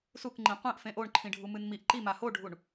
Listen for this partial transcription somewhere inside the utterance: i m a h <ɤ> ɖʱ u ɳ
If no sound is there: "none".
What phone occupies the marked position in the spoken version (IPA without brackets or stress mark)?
o